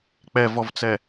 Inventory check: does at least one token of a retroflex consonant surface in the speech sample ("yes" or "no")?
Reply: no